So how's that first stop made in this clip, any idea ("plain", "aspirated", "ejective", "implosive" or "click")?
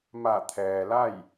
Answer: aspirated